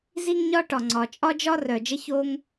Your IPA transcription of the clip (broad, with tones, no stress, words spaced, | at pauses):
zi˥ŋɲɒ˥ʈɒ˩ŋ͡ǀɒ˩ t͡ʃʼɒ˥d͡ʒɒ˥ rœ˩ d͡ʒə˥ço˥ŋ